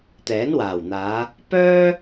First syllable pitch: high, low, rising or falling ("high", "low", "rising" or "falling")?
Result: rising